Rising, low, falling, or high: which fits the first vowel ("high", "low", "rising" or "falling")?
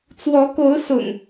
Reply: rising